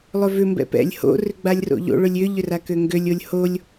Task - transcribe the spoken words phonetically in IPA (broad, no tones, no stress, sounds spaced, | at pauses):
lˠ ø v ʏ m b ɛ̰ p ɛ̰ lʲ h o̰ r ʏ ɡ͡b a lʲ r o̰ ʎ o̰ ɭ ʏ lʲ ʏ ʎ ʏ r a k ø ŋ ɡ ø lʲ o lʲ h o lʲ